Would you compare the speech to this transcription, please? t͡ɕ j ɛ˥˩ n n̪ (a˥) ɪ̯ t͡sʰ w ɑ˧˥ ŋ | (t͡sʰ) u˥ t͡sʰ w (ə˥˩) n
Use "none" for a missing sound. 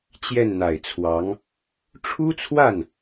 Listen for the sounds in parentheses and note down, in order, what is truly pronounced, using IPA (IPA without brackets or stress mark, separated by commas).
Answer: a˨˩, ʈ͡ʂʰ, a˥˩